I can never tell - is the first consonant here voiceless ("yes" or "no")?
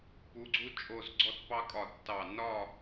yes